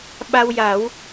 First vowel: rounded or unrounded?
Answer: unrounded